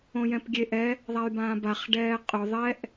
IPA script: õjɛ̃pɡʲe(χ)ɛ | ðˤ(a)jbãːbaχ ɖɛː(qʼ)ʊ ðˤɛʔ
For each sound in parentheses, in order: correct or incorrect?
incorrect, correct, correct

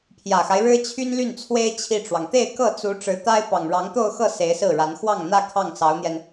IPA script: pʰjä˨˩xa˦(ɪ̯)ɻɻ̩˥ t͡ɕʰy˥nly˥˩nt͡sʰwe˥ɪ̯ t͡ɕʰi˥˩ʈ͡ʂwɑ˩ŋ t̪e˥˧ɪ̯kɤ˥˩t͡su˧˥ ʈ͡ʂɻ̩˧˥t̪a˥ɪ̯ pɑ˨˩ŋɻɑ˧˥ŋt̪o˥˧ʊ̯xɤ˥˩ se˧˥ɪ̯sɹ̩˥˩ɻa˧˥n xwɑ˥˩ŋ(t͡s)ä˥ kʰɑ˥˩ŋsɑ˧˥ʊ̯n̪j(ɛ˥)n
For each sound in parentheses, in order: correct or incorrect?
correct, incorrect, incorrect

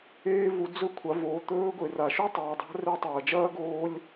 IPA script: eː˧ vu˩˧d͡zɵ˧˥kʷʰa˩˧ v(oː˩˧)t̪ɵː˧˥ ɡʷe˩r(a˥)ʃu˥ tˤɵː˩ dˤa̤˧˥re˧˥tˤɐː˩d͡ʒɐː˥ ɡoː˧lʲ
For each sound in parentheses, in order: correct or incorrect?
incorrect, incorrect

